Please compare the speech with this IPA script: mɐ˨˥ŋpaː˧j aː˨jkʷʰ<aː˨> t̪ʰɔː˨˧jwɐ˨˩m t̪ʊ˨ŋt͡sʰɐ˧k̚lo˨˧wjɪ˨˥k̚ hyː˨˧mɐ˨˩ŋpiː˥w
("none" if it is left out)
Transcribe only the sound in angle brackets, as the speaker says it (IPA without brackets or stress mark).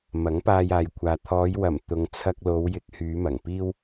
aː˨